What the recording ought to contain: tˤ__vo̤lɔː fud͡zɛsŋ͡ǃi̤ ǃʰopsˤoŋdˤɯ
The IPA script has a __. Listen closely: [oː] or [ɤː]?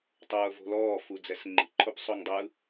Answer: ɤː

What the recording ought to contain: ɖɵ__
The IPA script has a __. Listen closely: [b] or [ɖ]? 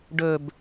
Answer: b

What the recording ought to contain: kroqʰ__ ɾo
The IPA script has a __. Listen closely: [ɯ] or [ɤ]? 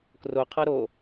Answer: ɤ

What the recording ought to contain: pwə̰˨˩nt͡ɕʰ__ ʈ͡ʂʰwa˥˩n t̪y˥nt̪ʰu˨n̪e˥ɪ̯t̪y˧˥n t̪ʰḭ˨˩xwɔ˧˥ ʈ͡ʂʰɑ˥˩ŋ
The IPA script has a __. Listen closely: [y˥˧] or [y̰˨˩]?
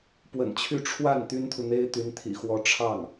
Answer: y˥˧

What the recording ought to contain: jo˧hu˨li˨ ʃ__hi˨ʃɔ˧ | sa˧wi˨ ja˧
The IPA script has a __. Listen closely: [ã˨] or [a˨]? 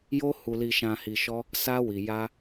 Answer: ã˨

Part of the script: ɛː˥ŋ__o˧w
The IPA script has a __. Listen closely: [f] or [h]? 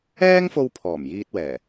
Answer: f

